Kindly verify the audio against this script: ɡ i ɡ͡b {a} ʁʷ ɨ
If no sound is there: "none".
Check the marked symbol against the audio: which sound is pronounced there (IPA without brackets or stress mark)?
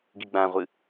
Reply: ã